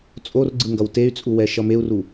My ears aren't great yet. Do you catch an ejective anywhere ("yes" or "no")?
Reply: yes